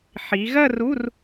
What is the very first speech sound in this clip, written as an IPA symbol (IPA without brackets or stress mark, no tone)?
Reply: ħ